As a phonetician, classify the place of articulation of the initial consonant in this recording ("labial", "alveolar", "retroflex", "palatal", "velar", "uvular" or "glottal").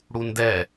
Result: retroflex